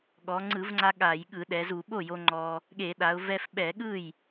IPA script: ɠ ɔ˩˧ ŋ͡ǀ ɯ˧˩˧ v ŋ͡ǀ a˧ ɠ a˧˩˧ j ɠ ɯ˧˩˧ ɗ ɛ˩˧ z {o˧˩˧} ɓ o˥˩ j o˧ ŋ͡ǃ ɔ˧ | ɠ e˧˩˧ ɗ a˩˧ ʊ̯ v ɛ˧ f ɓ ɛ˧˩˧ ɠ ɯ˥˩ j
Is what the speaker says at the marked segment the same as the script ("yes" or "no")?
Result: no